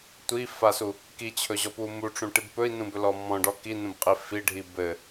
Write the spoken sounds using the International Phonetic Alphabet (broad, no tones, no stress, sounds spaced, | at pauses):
tʷ i f a s u | k i t͡ɕʰ ɵ ʑ ɔ p u m u ʈ͡ʂ ũ ʈ i b p ɵ i̯ n ũ b ɵ l ɔ m ɔ̃ ɖ ɔ k i n ũ b qʼ i f i ɖʱ i b ɘ